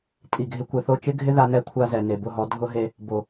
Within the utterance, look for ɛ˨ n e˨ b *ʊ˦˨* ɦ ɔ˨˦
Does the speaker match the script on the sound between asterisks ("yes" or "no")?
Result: yes